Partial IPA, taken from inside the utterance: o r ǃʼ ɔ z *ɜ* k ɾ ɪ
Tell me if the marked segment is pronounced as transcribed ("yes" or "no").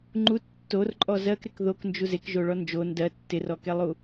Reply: yes